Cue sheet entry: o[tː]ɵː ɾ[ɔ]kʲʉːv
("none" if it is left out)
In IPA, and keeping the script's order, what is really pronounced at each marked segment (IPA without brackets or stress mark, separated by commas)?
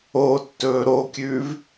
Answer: tː, o